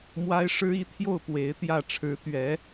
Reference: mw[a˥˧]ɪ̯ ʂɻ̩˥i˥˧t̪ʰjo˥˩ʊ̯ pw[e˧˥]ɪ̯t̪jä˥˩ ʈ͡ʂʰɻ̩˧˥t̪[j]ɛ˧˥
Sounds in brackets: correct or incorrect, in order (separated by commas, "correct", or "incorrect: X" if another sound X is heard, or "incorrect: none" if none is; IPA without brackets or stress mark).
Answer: incorrect: a˥, correct, incorrect: ɥ